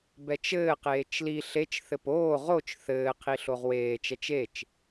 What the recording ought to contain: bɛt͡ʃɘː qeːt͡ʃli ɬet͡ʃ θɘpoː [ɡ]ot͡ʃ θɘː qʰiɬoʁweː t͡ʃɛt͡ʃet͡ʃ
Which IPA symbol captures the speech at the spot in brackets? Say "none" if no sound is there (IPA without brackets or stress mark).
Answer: ʁ